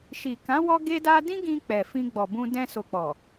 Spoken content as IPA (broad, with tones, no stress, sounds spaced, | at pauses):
ʃ i˨ k ã˨˦ w ɔ˦ ɡ e˦ d a˦ d ĩ˦ ɡ ĩ˧ k͡p ɛ˨ f ĩ˧ ɡ͡b ɔ˨ b ũ˧ d ɛ̃˧ s o˨ k͡p ɔ˨